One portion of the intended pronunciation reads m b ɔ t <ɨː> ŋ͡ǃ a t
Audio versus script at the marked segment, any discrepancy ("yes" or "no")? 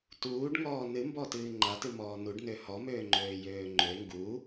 no